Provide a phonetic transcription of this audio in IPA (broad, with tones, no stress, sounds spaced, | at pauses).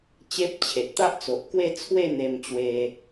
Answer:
t͡ɕ e˦ p̚ t͡ɕʰ e˨ t̚ t̪ a˦ ʔ t͡s o˨ ʔ k w e˥˧ t͡sʰ w e˥˧ n̪ e˧ m t͡ɕ w e˧